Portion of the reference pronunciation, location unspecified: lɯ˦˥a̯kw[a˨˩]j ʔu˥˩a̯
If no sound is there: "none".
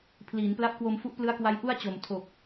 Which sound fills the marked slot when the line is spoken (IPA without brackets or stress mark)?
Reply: a˦˥